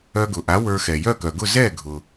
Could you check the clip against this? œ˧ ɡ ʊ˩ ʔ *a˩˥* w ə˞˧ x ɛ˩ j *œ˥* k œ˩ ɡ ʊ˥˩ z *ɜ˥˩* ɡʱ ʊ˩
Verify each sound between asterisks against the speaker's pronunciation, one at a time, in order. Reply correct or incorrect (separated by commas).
correct, incorrect, incorrect